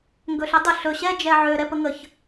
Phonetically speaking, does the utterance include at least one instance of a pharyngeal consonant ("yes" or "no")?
yes